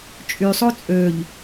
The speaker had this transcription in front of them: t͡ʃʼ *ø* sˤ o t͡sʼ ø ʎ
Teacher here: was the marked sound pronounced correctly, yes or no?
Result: no